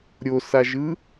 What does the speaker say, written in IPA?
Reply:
ɾʲ o s a ʒ ɯ

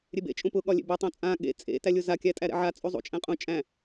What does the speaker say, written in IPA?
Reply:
ɾʲ e b ḛ t͡ʃʼ ũ p ʊ ɠ ɒ lʲ ḛ b e tˤ õ t͡sʼ ã ɠ ḛ t͡sʼ ḛ t æ lʲ ʊ z a kʲ æ tʼ æ ɾ ɛ̰ ʕ a t͡sʼ u zˤ ṵ t͡ʃʼ æ̃ qʼ ũ t͡ʃʼ æ̃

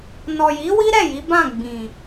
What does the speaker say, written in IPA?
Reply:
n ɔ˨ j i˨˦ w i˦ ɾ ɛ˦˨ j i˨˦ b ã˦˨ ɡ͡b ĩ˨

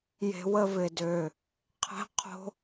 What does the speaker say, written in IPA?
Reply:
j e̤˧ w ə˥˧ v ɪ˧˩ d ø˧˩ | qʰ ɛ̤˥ qʰ o̤˥

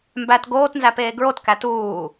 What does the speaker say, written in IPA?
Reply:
m b æ t ɡ oː t n z æ p eː ɡ ɹ o t k æ t uː

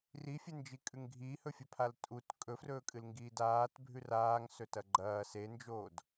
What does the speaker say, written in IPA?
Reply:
r i fʲ e n d͡ʒ i kʼ ʉ ŋ ɡʱ iː h ɵ fʲ ɵ pʰ a l tʼ u t kʼ ɵ f r ɵː kʼ ɨ l ŋ ɡ iː d aː t bʱ ʉ r aː ŋ s ɵ t ɐ ɡ͡ǃ ɐː s e n d͡ʒ oː d

